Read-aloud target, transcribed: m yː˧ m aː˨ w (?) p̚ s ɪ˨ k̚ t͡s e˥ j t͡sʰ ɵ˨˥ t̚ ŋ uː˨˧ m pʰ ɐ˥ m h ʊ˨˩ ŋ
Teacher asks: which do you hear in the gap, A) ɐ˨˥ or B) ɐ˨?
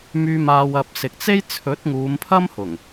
B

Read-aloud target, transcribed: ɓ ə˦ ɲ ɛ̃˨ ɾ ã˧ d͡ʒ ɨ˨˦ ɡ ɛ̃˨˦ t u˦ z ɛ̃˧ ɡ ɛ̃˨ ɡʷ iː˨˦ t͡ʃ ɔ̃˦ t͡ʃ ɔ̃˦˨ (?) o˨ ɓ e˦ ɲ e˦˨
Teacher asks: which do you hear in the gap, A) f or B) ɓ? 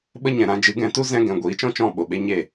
B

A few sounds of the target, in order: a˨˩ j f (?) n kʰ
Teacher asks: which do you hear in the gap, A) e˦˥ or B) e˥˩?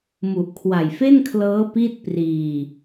B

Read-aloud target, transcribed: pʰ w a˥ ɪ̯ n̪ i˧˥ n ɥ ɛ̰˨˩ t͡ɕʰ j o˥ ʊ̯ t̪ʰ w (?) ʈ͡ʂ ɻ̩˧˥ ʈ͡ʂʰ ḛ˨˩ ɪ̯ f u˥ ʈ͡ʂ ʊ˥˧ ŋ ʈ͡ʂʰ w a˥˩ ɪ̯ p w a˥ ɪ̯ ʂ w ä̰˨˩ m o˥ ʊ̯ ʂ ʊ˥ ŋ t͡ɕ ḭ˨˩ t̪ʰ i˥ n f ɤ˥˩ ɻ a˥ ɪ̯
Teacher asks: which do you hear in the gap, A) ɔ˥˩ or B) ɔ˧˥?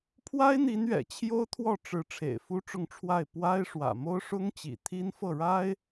A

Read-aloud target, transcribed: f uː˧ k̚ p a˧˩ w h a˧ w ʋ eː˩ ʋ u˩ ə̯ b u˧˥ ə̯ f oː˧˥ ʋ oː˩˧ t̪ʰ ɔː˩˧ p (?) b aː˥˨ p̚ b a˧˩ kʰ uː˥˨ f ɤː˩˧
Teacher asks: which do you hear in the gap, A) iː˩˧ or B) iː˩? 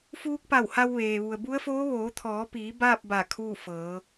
A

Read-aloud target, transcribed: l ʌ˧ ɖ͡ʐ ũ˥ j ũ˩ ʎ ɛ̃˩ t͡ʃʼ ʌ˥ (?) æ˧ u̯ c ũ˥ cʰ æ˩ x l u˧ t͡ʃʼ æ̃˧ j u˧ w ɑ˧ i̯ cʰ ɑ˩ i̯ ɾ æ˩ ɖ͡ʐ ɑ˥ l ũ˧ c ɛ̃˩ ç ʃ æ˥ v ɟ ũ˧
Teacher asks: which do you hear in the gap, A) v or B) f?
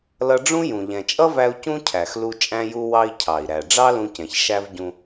A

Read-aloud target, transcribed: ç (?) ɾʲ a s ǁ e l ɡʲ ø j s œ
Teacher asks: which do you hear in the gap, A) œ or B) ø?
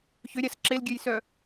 B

